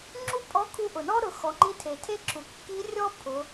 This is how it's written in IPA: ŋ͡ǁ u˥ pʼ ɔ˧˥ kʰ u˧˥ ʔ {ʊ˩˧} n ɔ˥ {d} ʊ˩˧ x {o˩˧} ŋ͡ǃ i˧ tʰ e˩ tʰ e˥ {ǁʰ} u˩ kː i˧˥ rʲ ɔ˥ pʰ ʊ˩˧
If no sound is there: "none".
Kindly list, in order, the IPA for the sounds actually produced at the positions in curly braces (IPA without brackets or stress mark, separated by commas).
ʊ˩, ɾ, ɔ˩˧, ǁʰ